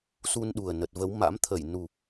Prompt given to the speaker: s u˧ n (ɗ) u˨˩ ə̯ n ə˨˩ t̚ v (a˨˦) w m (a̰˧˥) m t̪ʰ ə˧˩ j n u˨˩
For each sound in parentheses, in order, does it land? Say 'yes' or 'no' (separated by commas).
yes, no, yes